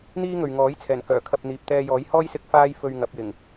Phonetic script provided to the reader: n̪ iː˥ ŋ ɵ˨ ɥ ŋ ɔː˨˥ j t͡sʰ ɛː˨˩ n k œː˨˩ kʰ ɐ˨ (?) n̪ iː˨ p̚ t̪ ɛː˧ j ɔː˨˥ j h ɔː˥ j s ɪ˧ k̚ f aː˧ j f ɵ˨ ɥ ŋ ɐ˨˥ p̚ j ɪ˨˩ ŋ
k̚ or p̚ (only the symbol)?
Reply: p̚